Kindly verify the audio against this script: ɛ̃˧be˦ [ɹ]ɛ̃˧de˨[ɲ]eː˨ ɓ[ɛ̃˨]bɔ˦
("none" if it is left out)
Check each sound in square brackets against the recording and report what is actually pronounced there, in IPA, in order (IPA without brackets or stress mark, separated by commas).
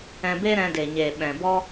ɾ, ɲ, ɛ̃˨